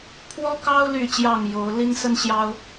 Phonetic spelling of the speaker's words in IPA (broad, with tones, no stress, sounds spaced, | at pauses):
pʰ w ɔ˦ k ɑ˦ ʊ̯ l y˥˨ t͡ɕ j ɑ˥˨ ŋ j o˨˦ ʊ̯ l i˦ n s ə˦ n ɕ j ɑ˦ ʊ̯